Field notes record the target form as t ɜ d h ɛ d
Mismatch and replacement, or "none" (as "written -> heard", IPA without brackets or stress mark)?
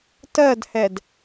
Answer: none